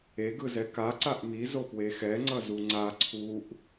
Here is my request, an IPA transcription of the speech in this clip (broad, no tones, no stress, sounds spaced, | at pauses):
e ɡ ɯ z ɛ k a ǀ a ʔ m i z o p w e x ɛ ŋ͡ǀ ʌ z u ŋ͡ǀ a ǀʰ u ʔ